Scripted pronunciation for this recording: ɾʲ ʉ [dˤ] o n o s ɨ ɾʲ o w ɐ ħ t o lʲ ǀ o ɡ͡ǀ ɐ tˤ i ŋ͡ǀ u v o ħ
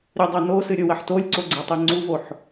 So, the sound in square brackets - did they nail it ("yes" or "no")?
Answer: yes